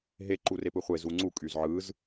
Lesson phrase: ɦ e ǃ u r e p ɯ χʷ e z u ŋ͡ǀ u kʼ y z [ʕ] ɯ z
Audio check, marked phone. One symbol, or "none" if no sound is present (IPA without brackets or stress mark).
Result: ʕ